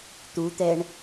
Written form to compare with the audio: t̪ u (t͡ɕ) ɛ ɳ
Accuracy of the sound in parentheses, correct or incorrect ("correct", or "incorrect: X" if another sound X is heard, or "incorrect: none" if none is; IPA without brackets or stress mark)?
incorrect: t̪